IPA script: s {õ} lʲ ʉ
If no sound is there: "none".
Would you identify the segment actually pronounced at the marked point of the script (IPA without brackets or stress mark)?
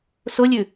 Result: o